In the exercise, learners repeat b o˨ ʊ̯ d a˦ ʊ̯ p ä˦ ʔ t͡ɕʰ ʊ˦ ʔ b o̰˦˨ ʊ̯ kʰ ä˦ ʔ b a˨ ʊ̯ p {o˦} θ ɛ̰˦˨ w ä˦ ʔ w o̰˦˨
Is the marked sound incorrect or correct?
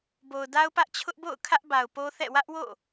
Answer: correct